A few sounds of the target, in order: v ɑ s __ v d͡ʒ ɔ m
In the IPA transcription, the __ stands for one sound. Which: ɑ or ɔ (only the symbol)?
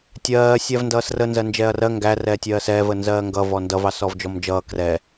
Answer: ɔ